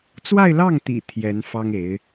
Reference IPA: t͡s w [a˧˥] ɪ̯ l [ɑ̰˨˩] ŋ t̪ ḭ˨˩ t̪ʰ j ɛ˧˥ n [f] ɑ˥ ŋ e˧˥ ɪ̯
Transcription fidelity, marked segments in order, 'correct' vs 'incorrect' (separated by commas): incorrect, incorrect, correct